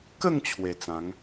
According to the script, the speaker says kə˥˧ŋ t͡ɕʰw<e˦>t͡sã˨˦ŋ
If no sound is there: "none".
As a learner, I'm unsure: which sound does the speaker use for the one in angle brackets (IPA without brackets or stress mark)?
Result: e˨˩